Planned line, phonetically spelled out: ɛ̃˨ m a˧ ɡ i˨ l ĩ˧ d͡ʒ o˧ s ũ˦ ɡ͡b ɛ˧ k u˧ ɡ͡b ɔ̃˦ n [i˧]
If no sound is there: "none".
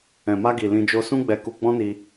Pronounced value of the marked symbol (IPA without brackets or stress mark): i˧